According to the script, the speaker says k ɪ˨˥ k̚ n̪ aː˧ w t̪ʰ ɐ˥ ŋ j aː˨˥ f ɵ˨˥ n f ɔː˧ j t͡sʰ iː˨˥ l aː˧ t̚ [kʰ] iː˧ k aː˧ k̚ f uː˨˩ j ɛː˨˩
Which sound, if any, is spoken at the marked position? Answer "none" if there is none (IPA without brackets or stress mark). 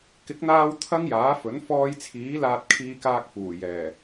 kʰ